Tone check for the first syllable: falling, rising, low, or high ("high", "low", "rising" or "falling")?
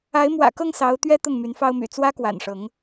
rising